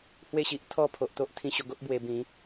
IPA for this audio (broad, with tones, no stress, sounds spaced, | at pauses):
h w e˥˧ ɕ i˨ ʔ t̪ʰ ɔ˥˧ pʰ o˨ ʔ t̪ o˦ ʔ t̪ʰ ĩ˧ ɕ o˧ ɡ o˦ ʔ b w e˧ b ĩ˨˦